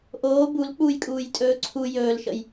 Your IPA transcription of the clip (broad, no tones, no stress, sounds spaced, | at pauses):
ʔ oː b u l k͡p uː j kʼ uː j tʼ ɵː ǀʰ u j ɵː l ʃ ə̰ j